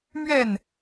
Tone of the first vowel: falling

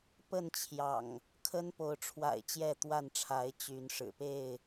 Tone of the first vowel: falling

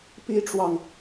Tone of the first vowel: high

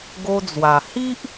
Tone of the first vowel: high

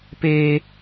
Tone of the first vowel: low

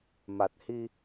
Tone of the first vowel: low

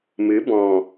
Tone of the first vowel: rising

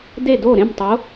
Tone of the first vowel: falling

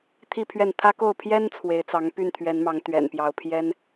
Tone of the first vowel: falling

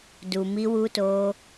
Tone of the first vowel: low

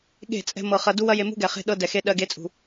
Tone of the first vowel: falling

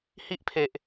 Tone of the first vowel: high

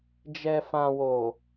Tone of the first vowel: low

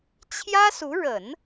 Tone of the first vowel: high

